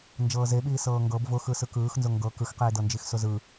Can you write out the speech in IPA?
nd͡ʒɤːzeɓiː sɤːŋɡɤb vʊxɯ sɯkɯːxnzʊ ŋɡɤ kɯxqiː dɤnd͡ʒixsʊzɯ

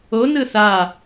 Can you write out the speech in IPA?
o nɯθa

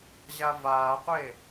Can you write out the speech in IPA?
ʑavaːqʷe

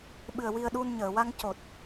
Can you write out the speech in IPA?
ɓɨ˨˩ə̯ wi˧ə̯ɗu˧nɲəː˨˩˨ wa˧ŋ co˨˩t̚

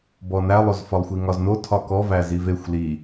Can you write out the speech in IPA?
bɔnælˠozfɒlˠ xʷiŋɒzno tʰɒkɔ væzivexʷ li

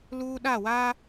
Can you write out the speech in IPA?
luː˦ɗa˦˨waː˦

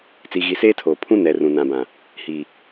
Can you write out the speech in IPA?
t͡si˨ɣi˨seː˦tʰoː˨ pʰũ˦ nɛ˨ rũ˨nã˨bã˨ | hi˨

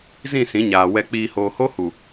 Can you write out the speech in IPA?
zĩ˦˨sĩ˨˦ɲaː˨ wɛ˨k͡piː˨hoː˨ho˦ hu˨

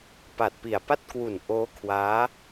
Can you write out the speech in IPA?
pa˨˩t̚pi˨˩a̯ pa˥˩t̚kwu˨˩n ʔoː˦˥kʰwaː˦˥

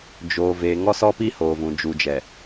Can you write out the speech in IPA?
d͡ʒoː˨ve˨ ŋɔ˦sɔ˦pi˦ hoː˨vũ˨d͡ʒu˨d͡ʒɛ˨

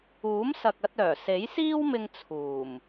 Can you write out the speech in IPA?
uː˨˥msɐ˨k̚ɐ˧t̚œː˨˩ se˨˥jsiː˥wmɪ˧ŋ t͡sʰuː˨˩m

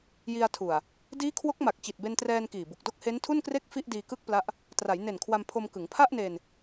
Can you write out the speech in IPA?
ji˧a̯tʰu˨˩a̯ | diː˦˥kʰwo˦˥k̚ma˨˩k̚ t͡ɕi˨˩t̚be˧ntrɛː˧n kiː˨˩bu˨˩k̚do˥˩k̚ he˦˥ntʰu˥˩nkre˥˩k̚ fi˥˩ʔdiː˧kɯ˥˩k̚pla˦˥ʔ | tra˩˦jne˨˩n kʰwa˧mpʰo˧m kɯ˩˦ŋpʰa˥˩ʔne˧n

